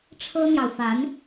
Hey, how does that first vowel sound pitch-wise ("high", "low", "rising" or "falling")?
high